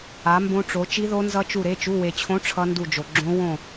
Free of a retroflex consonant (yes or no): no